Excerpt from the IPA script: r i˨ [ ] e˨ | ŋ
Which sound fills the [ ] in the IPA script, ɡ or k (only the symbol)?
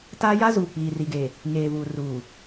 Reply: ɡ